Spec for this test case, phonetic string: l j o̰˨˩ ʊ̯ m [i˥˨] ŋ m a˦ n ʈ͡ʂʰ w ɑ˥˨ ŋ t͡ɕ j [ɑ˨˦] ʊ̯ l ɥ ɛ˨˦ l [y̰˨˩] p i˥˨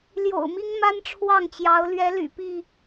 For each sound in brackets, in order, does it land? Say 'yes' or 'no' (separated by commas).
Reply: no, yes, yes